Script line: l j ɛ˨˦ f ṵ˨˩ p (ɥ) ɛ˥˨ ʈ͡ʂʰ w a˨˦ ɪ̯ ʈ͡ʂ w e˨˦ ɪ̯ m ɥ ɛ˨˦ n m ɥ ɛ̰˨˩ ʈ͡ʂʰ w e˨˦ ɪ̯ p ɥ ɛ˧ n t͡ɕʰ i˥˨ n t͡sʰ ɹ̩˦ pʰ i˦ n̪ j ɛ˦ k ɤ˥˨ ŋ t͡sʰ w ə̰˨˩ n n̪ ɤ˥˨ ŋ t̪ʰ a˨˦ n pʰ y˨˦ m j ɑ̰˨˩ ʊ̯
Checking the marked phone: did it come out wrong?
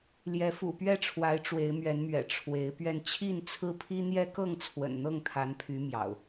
no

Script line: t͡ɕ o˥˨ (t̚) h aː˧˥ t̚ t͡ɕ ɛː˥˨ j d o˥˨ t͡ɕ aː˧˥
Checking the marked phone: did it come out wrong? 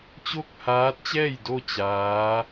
yes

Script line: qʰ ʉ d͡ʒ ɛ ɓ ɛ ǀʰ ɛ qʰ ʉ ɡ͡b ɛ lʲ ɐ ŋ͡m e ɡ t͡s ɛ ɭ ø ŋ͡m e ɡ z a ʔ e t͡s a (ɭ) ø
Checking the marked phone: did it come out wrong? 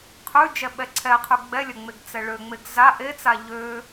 yes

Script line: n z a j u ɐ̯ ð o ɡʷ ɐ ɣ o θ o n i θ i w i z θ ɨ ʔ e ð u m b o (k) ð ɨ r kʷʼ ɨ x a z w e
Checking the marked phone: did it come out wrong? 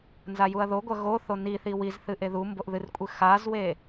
yes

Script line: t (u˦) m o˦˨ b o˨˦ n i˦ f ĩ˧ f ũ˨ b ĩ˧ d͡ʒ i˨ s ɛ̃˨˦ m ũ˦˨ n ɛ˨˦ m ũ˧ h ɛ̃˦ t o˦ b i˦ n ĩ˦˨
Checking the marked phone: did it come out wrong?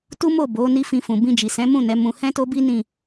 no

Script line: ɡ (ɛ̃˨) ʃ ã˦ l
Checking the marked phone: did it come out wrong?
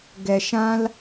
yes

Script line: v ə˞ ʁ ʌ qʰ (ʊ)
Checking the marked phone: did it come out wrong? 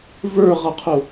no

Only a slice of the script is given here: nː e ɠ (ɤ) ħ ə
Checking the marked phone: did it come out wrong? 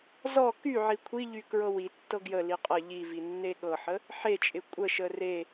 no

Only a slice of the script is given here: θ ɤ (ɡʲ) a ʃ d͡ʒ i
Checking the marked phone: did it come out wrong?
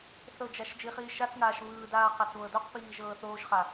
yes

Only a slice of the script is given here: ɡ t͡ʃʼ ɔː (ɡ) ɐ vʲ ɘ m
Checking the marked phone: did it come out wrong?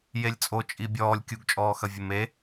yes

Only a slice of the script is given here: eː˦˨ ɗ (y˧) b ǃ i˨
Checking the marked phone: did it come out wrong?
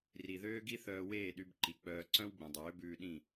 no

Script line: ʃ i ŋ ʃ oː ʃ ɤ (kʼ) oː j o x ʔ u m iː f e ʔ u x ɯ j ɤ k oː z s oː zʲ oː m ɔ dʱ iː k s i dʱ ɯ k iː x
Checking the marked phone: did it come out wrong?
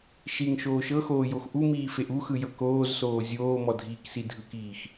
yes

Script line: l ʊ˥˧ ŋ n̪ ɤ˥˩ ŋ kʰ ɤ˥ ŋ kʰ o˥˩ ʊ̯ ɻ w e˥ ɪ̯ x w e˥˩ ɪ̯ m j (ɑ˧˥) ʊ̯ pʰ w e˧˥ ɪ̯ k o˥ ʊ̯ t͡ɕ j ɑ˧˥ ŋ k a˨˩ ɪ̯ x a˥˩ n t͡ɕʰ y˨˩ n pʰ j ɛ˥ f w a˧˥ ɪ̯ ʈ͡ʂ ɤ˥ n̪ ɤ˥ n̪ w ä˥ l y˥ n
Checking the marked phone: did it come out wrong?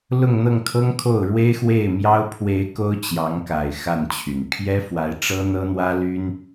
yes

